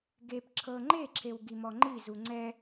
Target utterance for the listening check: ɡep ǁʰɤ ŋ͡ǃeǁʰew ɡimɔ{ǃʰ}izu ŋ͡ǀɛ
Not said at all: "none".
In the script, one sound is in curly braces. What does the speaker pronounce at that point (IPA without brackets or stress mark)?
ŋ͡ǃ